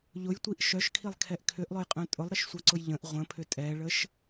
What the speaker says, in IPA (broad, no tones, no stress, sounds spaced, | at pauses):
ʎ ʊ j tʷ i ʔ ʃ œ ʃ kʰ i lˠ kʰ ɛ ʔ kʰ ʏ ʔ lˠ ʊ j qʼ œ̃ tʼ ʊ lˠ ɾ ə ʃ sʷ œ ǀ ʊ j ʎ ə̃ ʔ ʁʷ ə̃ pʰ ʏ tʼ ɛ ɭ ə ʃ